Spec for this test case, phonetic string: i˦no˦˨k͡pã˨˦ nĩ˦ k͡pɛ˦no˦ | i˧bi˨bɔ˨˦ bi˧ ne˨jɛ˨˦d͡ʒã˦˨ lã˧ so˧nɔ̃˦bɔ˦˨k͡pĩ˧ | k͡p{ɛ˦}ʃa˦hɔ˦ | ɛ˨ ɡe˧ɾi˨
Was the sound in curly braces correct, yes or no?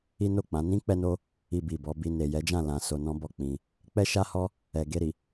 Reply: yes